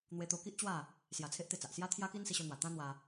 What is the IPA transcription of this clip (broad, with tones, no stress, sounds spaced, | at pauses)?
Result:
n̪ w e˧ t̪ o˧ k i˦ ʔ t͡ɕ w a˥˧ | s j a˧ t͡sʰ e˦ ʔ t̪ e˥˧ t͡s a˨ ʔ s j a˦ t̪ʰ j a˦ k i˦ n s i˧ ɕ o˧ n̪ w a˨˩ t̪ ã˦ n̪ w a˧